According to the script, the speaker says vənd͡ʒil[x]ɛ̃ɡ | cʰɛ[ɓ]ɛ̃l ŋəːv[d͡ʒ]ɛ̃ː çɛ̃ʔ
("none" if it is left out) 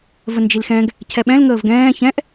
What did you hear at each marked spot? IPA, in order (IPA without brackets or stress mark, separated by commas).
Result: x, ɓ, ɡ